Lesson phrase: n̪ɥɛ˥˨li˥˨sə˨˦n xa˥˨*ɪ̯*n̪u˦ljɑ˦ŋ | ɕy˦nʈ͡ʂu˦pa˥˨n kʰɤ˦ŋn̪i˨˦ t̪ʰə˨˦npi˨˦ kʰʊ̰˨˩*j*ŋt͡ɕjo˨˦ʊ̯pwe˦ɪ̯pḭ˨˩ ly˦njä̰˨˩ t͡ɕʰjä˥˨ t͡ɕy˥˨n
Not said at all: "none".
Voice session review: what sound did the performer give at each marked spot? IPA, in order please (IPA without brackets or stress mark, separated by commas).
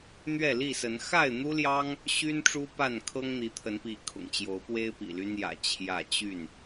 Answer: ɪ̯, none